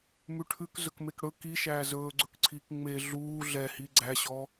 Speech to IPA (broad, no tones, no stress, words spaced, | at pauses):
mʉʈʰʉk zɵkmekɽɵ ki ʃæːzɵːɡ͡ǀɵkǀʰiːk ŋ͡me ɮuː ɮɛhi ɡ͡ǀæɕɔ